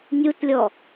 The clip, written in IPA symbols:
nʲutlʲɔ

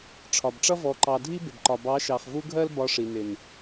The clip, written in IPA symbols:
ʈ͡ʂʰɒ˨bʈ͡ʂʌ˦ vɔ˧ǃɑ˧ dʱi˦bɪ˨bǃɒ˨ bɑ˨˦ʃɑ˨χvu˧ ɡʱɜ˦lbɒ˧ʂi˨nɪ˨n

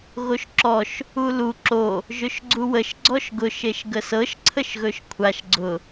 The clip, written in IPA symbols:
ɣoʃǁɔʃ | ulu ǁo | ʒɵʃɡ͡ǀuwəʃ ɡ͡ǀɔʃɡʊ ʃeʃɡəsɤʃ ǀʰəʃɣɵʃkʷʰaʃ ɡ͡ǀʊ

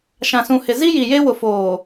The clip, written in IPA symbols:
ʃã˨sũ˨hɪ˨ zi˦ji˨je˦ wʊ˨foː˨

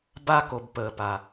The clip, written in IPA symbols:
ba˧ko˩b pəː˩pa˩

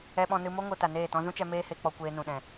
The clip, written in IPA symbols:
ɛ˧ɓɔ̃˧nɨ˧mo˦ ŋo˧ta˨neː˦˨ tɔ̃˧zũ˦t͡ʃɛ˧ meː˦he˧k͡pɔ˧ kʷeː˧nũ˨ɗɛ̃˨

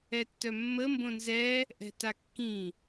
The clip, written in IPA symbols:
ɛtːœmːə mbõnzɛ | ʔɛ̤takːĩ

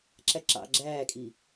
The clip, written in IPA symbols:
ǁæǁɑ̰ ɡ͡ǁæːkʼi

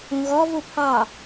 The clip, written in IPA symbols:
ũɣɔ vupʰɑ

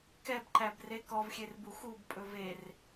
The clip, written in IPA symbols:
kɛbǃæbre kɔvxʲerbu xubpʼɵ ver

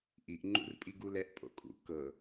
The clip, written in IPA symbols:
ʔiʔ ŋ͡ǃṵrpʼiɡulɛʔ pʼo̰kʼṵ kɤ

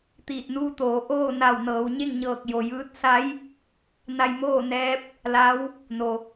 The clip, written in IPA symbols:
t̪iː˧˩t̚nuː˧˥t̪oː˩˧ ʔoː˥˨na˧˩w nɤː˩˧wɲe˥˨ŋɲɤː˧˩k̚ jo˩jɯː˧˥t̚ sa˧˥j | na˧jmoː˥˨nɛː˧˥p̚ | la˧˥w | no˩

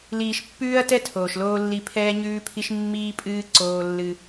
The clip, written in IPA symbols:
liː˨ʃpːʉː˦ɐ̯tɛ˦ tʰoː˨ʃloː˦lːi˦ pʰɛː˦ɲʉː˦pʰi˦ʃ mːiː˦pʼɨː˦ ǀoː˦lːɨ˦

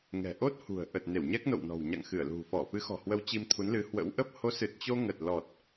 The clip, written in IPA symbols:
ŋɛ̤˨˩ ʔo˦˥t̚hṳ˨˩ə̯ ʔə˨˩t̚ne˧˩w ɲɛ˦˥k̚no̰˧˨wnɔ̤˨˩w ɲa̰˧˨ŋxɨ˧˩ə̯lṳ˨˩ fɔ˧˩ fɨ˨˦xɔ̤˨˩hwə˨˦w t͡ɕi˧mt̪ʰu˨˦nlɨ˨˦ hwə̰˧˥wʔə˦˥p̚ ho˨˦sɨ˨˩t̚t͡ɕo˧ ŋə˨˩t̚lɔ˨˩t̚

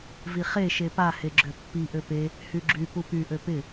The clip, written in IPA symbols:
viχe ʃepa heɡ͡ǁøpːi ʔøpe | hyɡ͡ǁy pupy ʔøpɪ

